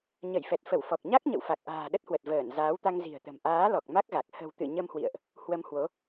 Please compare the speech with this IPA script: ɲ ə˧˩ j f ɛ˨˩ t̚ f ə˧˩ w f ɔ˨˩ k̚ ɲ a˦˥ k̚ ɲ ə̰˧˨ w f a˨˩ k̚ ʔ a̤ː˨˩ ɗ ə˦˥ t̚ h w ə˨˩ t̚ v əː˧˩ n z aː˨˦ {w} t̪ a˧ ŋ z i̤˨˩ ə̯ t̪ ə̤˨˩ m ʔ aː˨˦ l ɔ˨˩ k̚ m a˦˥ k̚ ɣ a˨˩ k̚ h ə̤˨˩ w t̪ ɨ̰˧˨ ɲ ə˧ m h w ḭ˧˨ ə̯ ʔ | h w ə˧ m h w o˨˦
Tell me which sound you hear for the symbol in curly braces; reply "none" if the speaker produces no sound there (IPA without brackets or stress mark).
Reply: w